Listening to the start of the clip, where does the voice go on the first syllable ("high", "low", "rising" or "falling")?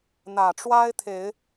low